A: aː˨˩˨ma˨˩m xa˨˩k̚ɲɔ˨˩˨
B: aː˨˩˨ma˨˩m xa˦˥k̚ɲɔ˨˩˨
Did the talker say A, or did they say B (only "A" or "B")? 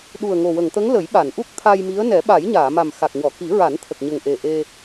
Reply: A